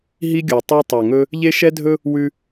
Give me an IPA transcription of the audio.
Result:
ɦi˦ɡʲo˨tˤe˦ tˤo˨ŋɵ˦ | ʎe˦ʃɛ˦dʱɵ˦ | wʉ˦

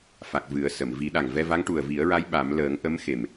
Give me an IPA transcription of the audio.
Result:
fa˨˩k̚ vɨ˨˩˦ə̯sə˨˩˨m vi˨˩˦ɗa˨˩ŋ vɛ˧va˧˥ŋ ʈu˨˩ə̯vi˨˩˦ə̯ɹa˧˥j ɓa˨˩˦m ləː˨˩˦ŋ ʔə˧˥mxe˨˩m

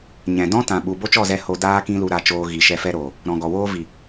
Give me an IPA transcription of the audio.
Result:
ɲɛ̃˨ dɔ̃˦ tã˨ɓu˨ bo˦t͡ʃɔ˦˨zɛ˧ ho˧ daː˦ kĩ˦lu˧ ɾa˧t͡ʃoː˧ ɣi˨ʃɛ˧fɛ˦ɾoː˨ | ɾɔ̃˨ɡɔ˨ woː˦vi˨

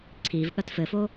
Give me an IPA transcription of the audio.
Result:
ǀʰivɠɐt fɘfo

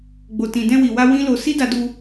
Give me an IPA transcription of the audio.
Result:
ɡ͡bo˨tĩ˨ dɛ̃˧wi˨wa˧ wĩ˦lo˧ si˦da˧du˧

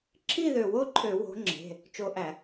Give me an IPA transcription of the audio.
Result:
ǁʰi˥˨ðø˧˩wo˥˨ǃʰø˧˩˧ wo̤˨˦ŋ͡ǁe̤˩˧˩ | t͡ʃo˧˩ʔæ˧˩˧

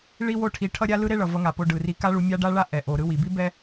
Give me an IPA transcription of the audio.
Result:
ɭi˥wo˥ʈʰi˧ ʈʰʌ˥ ɾʲa˥lɯ˥ ɾe˥ɭʌ˩vʌ˧ŋa˩ po˧ɖɯ˩ ri˧ka˥ɭu˧ mʲa˥ɖa˥ɭa˥ ʔɛ˩ʔo˩ ɾɯ˧wi˩bi˥ bɛ˥

